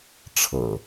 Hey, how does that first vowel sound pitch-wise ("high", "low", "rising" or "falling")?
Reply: low